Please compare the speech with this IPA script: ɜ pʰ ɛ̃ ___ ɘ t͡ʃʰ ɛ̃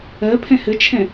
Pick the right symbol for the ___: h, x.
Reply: h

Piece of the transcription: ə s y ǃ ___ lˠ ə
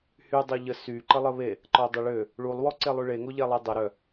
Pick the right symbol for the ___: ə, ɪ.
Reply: ə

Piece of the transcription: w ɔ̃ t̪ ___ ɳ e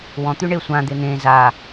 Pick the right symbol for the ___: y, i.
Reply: y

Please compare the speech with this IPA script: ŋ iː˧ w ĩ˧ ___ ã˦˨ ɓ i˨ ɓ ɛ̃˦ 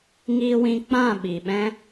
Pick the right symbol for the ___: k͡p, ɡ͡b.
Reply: k͡p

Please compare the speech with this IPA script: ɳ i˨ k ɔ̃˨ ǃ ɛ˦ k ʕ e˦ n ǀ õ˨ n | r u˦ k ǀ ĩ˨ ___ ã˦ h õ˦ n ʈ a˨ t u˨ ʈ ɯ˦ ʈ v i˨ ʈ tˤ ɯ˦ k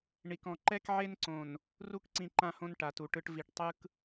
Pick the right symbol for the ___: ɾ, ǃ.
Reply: ǃ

